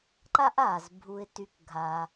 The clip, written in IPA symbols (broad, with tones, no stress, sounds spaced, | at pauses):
ǃ a˥ ʔ aː˩ z bʱ u˨ ɪ̯ t y˨ k ɡʱ a˨